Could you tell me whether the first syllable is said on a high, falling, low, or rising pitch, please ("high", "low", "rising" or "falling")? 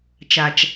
low